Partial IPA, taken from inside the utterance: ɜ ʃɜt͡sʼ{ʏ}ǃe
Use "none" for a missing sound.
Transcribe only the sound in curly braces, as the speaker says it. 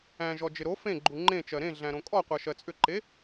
ʏ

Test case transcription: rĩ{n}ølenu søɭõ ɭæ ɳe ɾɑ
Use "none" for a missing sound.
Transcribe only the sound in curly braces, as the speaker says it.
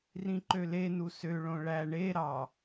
ǃ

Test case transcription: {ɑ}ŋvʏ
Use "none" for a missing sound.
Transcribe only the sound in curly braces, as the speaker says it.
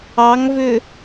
ɑ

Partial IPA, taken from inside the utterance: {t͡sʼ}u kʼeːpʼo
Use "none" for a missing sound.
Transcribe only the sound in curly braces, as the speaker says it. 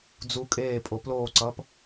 d͡z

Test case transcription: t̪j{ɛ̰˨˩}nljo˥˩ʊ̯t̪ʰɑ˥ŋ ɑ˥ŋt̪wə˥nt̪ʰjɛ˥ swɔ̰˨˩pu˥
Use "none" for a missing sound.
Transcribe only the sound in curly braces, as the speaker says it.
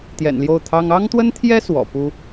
ɛ̰˨˩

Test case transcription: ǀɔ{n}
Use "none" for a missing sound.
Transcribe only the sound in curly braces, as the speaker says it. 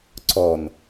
n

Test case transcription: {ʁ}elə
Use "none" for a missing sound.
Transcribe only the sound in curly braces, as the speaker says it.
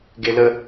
ɡ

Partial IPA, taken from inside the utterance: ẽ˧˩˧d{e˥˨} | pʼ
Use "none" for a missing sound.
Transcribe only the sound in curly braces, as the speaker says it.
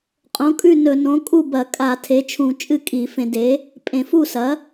e˩˥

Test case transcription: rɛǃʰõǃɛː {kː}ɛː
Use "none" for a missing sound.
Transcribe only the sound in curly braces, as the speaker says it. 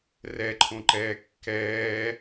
kː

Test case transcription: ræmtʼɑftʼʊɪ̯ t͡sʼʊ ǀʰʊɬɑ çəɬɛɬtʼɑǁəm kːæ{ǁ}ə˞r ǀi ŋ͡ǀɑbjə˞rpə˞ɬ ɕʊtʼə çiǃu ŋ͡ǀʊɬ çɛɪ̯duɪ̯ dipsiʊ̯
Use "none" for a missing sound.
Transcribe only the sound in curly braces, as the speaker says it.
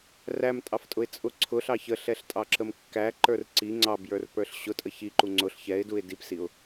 ǃ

